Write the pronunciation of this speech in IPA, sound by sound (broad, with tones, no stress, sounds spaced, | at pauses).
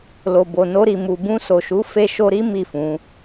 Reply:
l o˨ b o˨ n o˧ ɾ i˨ m u˨ b ũ˧ s o˨ ʃ u˨˦ f e˧ ʃ o˧ ɾ i˦ m i˦˨ f ũ˨˦